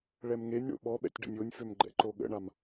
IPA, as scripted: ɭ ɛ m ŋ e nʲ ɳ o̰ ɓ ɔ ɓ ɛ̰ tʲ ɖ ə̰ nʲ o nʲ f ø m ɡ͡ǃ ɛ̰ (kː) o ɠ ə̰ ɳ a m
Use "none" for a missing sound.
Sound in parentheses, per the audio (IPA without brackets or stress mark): ǃ